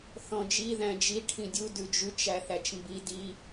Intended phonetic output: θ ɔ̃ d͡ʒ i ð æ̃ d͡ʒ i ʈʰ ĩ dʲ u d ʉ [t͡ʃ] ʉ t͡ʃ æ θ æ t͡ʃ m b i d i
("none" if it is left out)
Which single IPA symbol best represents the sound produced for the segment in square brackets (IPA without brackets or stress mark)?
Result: d͡ʒ